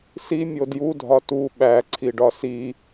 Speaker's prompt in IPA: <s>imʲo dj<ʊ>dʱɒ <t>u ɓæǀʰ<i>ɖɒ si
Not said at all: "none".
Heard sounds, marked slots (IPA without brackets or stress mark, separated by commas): s, u, t, i